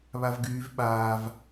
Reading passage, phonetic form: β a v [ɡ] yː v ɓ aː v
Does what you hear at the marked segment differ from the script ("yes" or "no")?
no